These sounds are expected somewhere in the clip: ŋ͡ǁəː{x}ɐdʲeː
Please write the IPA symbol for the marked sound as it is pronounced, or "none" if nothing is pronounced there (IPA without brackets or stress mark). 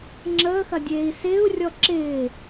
x